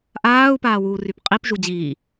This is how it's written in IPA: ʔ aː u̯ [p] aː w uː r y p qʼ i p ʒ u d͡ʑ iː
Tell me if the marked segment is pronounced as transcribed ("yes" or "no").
yes